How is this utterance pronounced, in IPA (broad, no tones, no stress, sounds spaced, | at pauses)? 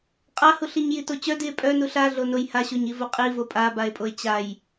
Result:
qʼ a h u ɬ i ɲ j i t o t͡ɕ œ d i e̯ pʼ œ n u ɬ a ɮ o n o j h a ɕ o ɲ i v o qʼ i v o pʼ a b a e̯ pʼ o e̯ t͡ɕ a j